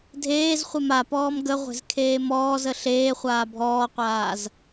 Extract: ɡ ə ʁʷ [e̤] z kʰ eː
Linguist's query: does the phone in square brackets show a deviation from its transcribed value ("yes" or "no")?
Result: no